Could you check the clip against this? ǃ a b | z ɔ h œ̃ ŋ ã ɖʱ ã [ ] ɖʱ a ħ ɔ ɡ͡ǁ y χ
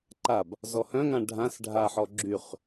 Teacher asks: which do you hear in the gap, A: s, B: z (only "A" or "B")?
A